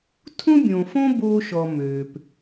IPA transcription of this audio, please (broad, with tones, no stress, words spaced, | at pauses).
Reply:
tʰũ˦bʲõ˨fõ˦ bo˦ʃɔ˨ mø˨p